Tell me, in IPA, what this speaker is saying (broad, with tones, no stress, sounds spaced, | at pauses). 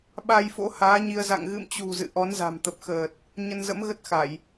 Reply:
ɓ a˧ j f o̰˧˥ h aː˨˦ ɲ i˧ ə̯ z a̰˧˨ ŋ ɣ ɨ̰˧˨ m t͡ɕ ṳ˨˩ z ɨ̰˧˨ ʔ ɔ˨˦ n z a̤˨˩ m t̪ ə˨˩ p̚ x əː˨˩ t̚ | ɲ ə˧ n z ə̰˧˥ m ɣ ə˦˥ t̚ x a˧˩˨ j